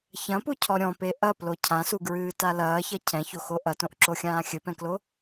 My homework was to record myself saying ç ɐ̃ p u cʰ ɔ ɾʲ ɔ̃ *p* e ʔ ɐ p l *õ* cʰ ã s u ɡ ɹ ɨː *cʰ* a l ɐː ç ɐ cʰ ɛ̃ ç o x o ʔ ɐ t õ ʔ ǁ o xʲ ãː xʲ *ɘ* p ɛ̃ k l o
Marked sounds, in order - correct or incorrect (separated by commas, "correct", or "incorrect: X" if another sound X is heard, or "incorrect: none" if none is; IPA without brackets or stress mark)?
correct, incorrect: o, incorrect: t, correct